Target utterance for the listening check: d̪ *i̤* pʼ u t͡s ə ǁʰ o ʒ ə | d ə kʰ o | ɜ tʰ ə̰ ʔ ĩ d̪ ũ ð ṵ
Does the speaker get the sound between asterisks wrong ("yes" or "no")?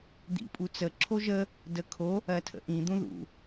yes